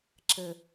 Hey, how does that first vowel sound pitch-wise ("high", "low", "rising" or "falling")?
low